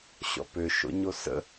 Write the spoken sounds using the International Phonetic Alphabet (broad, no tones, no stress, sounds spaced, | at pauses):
ɕ ɔ̰ p ø ʃ o̰ ɲ o s ə̰